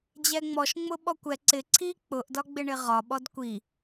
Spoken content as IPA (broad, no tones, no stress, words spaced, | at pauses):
d͡ʑɛŋ͡mɔʃŋ͡mʊ ɓɔkʷɛ ǀɪ ǀʰi k͡pʊʔdɒɡ͡bɪ ɳɪʁɒɓɔd kʷi